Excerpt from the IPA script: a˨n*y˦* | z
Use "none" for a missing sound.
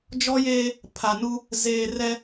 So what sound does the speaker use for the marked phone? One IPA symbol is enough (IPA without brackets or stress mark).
u˦